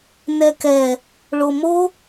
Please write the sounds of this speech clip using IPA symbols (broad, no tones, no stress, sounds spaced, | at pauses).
n ɛ k ɛ | ɭ o m o